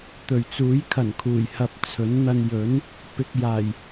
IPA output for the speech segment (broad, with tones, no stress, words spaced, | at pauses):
t̪ɵ˨˩ɥt͡suː˨˥j kʰɐ˨˩nkʰuː˨˩jhɐ˧p̚ t͡sʰɵ˨˥nn̪ɐ˧n jɵ˨˥n | pɪ˧k̚jaː˨˩j